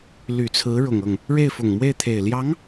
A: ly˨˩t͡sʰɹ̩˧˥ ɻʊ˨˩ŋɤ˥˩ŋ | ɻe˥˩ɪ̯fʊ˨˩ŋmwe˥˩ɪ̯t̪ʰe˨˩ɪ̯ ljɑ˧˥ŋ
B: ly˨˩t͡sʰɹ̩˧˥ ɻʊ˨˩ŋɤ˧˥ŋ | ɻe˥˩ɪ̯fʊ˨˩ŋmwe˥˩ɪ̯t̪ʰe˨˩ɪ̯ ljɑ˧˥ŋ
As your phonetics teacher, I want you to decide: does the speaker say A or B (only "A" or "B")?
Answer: A